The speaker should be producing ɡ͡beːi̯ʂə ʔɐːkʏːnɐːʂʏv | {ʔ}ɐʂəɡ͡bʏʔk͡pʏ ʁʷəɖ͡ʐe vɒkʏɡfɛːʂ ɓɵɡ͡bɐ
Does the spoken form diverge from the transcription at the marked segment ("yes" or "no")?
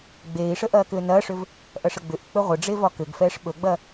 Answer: no